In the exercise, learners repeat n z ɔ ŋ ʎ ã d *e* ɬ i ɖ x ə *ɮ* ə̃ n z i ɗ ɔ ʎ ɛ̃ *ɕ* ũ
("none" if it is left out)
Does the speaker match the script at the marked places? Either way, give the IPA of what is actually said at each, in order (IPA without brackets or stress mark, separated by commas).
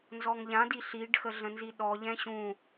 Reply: i, ɮ, ɕ